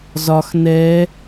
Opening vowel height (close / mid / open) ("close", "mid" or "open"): open